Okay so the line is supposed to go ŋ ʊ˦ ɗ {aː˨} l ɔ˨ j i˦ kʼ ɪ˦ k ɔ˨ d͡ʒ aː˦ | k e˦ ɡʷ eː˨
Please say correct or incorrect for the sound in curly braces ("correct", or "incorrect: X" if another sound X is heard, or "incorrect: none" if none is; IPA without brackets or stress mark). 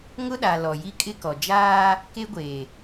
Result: incorrect: a˨